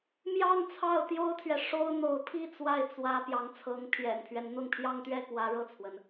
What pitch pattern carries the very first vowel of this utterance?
falling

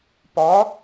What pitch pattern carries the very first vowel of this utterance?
rising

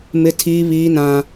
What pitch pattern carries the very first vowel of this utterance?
high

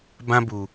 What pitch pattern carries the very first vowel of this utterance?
high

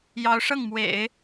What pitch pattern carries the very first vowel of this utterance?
rising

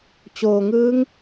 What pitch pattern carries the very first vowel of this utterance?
low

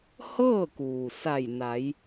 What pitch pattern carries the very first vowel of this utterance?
falling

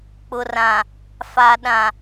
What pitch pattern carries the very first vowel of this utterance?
low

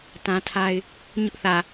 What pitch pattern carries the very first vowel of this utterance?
high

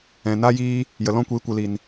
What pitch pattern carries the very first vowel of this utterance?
low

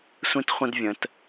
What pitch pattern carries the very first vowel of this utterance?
high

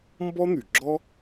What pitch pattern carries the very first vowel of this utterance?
high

